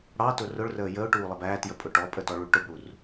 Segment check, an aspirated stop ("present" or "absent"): absent